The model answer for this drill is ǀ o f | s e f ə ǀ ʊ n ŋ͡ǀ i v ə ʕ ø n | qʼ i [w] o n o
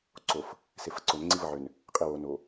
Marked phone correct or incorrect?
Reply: correct